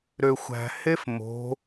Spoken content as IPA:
ɾ ø xʷ æ̤ h e f m o̤

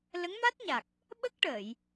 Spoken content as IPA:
l ə˧˥ ŋ m a˦˥ t̚ ɲ a˨˩ k̚ | ɓ ə˦˥ k̚ ʈ əː˨˩˨ j

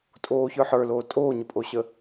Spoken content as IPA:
tʼ oː ç ə˞ ħ ə˞ l oː tʼ oː ɲ ə pʼ o ɕ ə

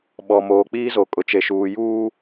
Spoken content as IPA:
ɓ ɔ˨ m oː˨ k͡p iː˦ z o˨ kʼ ʊ˨ t͡ʃ e˨ ʃ uː˨ j uː˦

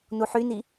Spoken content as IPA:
n u ħ y n i

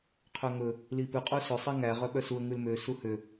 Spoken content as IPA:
qʰ œ ŋ ɵ | l i p ʉ qʼ u s ɵ sˤ i ŋ æ ʁ œ ɓ œ s u ə̯ ŋ ʉ l m ø s u h ø

